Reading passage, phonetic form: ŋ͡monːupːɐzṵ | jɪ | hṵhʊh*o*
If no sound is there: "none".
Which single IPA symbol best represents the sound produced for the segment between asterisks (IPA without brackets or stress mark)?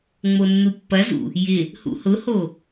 o